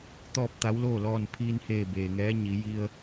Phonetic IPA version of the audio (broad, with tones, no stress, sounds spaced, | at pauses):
t̪ ɔː˥˨ p̚ t̪ a˧˥ w l oː˥˨ l ɔː˧˩ n pʰ iː˧ n h eː˧˩ b eː˩ ŋ ɛː˧˥ ɲ i˩˧ j i˧ ə̯